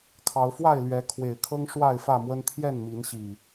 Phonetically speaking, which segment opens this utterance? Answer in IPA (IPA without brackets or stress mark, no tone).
kʰ